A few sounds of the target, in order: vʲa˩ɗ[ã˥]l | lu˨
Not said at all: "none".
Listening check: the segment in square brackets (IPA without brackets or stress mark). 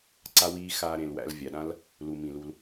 ã˥